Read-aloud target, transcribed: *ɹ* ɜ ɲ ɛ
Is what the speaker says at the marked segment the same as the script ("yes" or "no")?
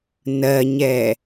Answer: no